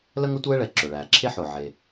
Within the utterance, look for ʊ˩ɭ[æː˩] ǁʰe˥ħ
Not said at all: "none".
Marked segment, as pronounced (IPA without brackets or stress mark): æː˩